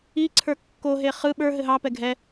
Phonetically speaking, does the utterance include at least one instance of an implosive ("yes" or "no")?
yes